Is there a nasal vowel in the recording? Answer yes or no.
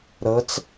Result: no